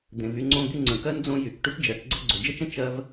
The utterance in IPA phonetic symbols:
d̪ ẽ˨ v y˦ ŋ͡ǀ õ˦ d̪ y˦ ŋ͡ǀ ə̃˩ k ɜ˥ n d͡z õ˦ j y˩ k ʈ y˥ ʈ d͡ʒ ɜ˩ ʈ ɡ͡ǀ ə˦ ɡ͡ǀ o˩ d͡ʒ ə˥ t͡ʃ ə̃˥ t͡ʃ ɜ˥ v

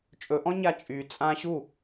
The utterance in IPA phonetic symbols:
t͡ʃʼ ɵ ʔ ɔ̃ ɲ a t͡ʃʼ y t͡sʼ ã ɕ u

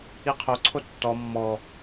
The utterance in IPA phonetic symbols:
i qʰ o ǀʰ o tː ɔ mː ɔ

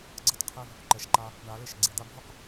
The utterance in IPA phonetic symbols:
ɡ͡ǀ ʌ˦ t qʰ e˦ v | ǃ ɛ˨ ʃ ǃ a˧ | ɳ a˨˦ l e˧ ʃ ɡ͡ǀ e˨ d̪ a˧ bʱ o˦ q

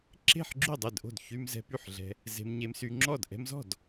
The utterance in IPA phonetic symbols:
ǁ e̤˥˩ ħ ɡ͡ǁ y˥˩ dˤ e˥˩ d ʔ o̤˥˩ d ç y˧ m z ɛ̤˧ p y˥˩ ħ ɮ ɛ̤˧ | z e̤˧ m ɲ e˧ m s y˧ ŋ͡ǁ ɔ˥˩ d ʔ ɛ̤˧ m z ɔ̤˥˩ d

